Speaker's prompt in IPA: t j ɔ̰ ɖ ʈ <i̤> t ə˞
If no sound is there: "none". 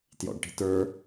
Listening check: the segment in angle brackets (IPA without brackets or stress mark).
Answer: i̤